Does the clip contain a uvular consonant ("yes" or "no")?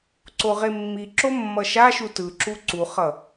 yes